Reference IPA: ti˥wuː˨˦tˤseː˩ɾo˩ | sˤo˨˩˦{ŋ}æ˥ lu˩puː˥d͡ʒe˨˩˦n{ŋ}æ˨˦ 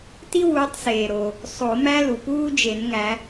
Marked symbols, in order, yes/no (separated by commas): no, yes